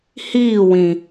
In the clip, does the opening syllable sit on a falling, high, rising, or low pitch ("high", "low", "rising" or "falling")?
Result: falling